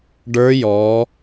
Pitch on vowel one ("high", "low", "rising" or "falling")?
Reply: rising